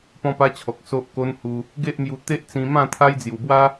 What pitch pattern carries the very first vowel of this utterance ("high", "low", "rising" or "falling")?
high